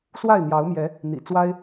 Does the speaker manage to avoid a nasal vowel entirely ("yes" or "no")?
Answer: yes